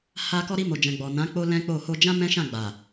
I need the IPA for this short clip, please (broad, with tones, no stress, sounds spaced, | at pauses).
h a˧ k ɔ˧ ɾ i˧ m o˨ d͡ʒ ɛ̃˨ ɡ͡b ɔ˨ n ã˨˦ k͡p o˧ l ɛ̃˦ k͡p o˦˨ h o˧ d͡ʒ ã˦ m ɛ̃˦ ʃ ã˦˨ ɡ͡b a˨